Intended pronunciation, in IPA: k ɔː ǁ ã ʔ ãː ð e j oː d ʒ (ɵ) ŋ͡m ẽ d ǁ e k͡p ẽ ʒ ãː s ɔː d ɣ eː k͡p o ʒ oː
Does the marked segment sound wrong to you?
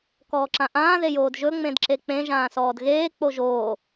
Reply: no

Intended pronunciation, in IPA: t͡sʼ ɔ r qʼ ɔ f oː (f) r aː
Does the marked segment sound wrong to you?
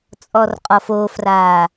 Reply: no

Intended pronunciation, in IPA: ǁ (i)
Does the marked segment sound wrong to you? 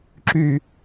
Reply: yes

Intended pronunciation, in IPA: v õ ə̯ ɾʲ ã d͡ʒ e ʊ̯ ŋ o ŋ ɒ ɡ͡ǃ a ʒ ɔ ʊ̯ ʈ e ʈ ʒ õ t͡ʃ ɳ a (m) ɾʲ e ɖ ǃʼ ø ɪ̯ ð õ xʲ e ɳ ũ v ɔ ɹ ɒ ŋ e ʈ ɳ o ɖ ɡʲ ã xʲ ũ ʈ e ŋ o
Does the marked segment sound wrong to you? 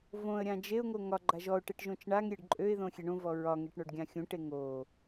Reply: yes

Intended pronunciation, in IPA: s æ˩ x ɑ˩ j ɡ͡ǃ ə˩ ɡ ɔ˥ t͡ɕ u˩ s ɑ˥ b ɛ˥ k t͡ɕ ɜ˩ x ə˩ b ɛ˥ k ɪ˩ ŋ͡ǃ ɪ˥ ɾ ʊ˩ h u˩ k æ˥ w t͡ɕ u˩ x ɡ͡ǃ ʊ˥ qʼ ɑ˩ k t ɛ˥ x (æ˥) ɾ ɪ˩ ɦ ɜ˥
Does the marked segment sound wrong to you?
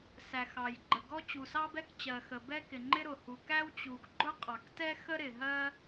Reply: yes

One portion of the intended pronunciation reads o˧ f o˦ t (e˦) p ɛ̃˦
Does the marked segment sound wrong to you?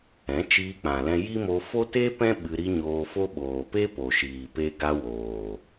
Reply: no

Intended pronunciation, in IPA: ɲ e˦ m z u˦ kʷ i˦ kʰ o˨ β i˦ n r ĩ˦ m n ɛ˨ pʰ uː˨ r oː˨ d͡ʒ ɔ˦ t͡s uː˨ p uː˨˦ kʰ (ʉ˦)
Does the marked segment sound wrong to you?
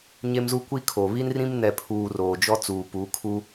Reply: yes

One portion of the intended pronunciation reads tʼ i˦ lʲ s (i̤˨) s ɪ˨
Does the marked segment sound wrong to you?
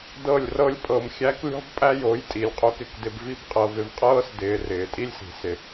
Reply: no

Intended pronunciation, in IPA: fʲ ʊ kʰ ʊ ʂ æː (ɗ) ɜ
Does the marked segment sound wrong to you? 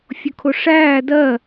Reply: yes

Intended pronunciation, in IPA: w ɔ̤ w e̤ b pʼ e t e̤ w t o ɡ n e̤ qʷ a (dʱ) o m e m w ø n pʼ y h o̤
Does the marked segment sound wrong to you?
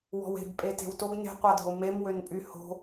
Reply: no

